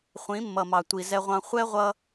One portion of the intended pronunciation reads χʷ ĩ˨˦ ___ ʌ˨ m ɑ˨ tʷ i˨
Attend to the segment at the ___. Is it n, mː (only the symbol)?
mː